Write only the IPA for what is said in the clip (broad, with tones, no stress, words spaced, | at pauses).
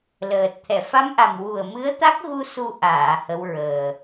ləː˨˩t̚ t̪ʰɛ˨˩˨fa˧˥mʔa˨˩m wu˨˩ə̯mɨ˧˥ə̯t̪a˦˥k̚ɣu˧ su˧ʔaː˨˩˨ hə˧˥wɹəː˨˩